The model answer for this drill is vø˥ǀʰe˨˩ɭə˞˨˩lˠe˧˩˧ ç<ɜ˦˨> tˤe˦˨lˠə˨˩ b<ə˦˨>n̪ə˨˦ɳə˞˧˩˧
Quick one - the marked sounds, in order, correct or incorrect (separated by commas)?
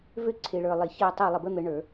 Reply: correct, incorrect